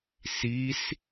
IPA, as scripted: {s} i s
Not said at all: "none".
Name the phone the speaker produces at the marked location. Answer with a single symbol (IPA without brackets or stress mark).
s